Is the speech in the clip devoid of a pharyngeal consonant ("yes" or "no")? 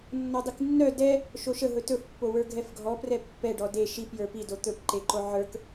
no